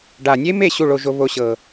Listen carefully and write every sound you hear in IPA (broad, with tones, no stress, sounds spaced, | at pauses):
ɖ a˨˩ nʲ e˦˥ m e˥˧ ɕ u˥˧ ɭ o˧ ʒ o˧ β o˧ ɕ ɤ˨˩